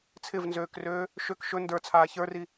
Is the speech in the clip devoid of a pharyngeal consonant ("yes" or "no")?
yes